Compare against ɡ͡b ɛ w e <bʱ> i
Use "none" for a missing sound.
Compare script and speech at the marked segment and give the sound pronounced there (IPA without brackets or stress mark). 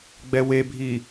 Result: bʱ